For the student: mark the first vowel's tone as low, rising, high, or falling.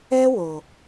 high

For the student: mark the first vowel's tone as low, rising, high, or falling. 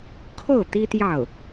falling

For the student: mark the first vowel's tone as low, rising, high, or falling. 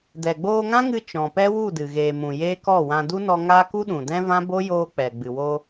low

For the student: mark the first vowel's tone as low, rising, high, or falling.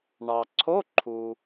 low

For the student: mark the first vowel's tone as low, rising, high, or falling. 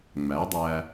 rising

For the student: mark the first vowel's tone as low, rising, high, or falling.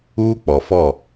high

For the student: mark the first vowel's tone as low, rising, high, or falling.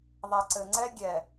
low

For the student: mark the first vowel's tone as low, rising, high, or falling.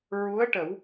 rising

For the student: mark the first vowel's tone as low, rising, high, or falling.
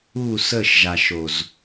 falling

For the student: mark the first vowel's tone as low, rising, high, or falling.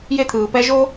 high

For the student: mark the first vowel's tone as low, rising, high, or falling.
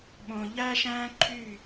low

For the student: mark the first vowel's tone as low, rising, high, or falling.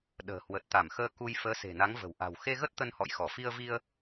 low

